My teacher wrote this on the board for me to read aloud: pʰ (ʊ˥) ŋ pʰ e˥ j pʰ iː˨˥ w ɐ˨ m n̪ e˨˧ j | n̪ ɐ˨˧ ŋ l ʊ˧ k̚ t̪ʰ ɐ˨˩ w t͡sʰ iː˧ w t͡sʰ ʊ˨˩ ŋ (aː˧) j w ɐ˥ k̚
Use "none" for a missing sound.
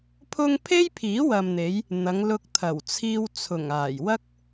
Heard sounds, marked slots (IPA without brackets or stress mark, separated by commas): ʊ˥, aː˨˩